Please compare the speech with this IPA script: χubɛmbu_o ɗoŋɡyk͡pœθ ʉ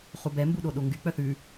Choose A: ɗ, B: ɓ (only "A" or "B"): A